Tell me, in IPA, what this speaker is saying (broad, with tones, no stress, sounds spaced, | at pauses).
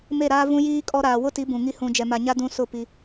m e˦˨ ɾ aː˦ v ũ˦ j iː˦ kʼ ɔ˦ ɾ aː˨ w ʊ˦ t i˨˦ b ũ˨ ŋ i˦ h ũ˨ d͡ʒ ɛ˨ m a˨ ɲ a˦ d ũ˦ s ʊ˦˨ p i˦